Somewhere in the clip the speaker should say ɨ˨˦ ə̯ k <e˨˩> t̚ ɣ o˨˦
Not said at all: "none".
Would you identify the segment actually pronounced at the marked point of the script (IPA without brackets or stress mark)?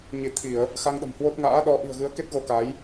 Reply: e˦˥